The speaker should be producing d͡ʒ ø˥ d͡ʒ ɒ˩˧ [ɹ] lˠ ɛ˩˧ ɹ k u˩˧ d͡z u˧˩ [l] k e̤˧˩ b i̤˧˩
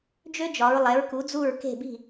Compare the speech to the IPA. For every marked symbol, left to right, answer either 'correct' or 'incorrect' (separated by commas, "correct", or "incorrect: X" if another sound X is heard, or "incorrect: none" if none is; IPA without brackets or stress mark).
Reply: correct, incorrect: ɹ